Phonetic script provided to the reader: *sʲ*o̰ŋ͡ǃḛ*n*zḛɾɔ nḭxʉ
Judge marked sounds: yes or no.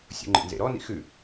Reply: yes, yes

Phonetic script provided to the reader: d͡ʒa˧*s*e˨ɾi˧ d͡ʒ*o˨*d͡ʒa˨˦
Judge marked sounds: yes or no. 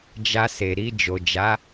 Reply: yes, yes

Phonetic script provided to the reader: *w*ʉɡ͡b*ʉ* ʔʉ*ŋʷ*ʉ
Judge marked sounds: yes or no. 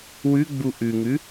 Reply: yes, no, no

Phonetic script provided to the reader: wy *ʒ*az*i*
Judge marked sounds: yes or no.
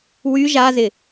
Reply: yes, no

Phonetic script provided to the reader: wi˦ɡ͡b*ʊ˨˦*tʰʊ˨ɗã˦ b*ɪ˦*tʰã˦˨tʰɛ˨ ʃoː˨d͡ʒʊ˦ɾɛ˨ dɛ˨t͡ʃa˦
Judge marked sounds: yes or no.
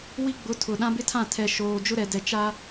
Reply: yes, yes

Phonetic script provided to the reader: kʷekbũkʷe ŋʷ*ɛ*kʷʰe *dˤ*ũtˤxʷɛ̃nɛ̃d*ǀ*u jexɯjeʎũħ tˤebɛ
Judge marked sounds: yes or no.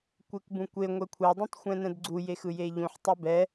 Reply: yes, yes, no

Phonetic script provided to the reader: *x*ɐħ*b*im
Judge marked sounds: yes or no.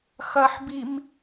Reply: yes, yes

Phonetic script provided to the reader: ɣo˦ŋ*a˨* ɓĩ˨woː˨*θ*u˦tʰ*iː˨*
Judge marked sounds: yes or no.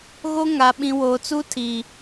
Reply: yes, no, yes

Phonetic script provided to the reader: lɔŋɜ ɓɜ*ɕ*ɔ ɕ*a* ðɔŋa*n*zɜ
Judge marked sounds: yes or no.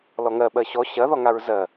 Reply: yes, no, no

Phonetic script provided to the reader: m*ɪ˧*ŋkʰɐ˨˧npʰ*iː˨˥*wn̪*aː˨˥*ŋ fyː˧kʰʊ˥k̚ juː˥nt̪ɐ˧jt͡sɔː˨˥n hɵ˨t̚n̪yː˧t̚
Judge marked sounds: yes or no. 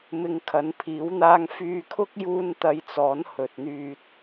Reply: yes, yes, no

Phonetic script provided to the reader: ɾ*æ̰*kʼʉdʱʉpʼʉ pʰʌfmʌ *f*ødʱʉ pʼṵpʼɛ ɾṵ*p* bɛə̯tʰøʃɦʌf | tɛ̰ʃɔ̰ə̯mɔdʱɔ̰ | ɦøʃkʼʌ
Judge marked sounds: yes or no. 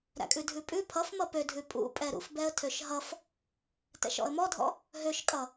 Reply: yes, no, no

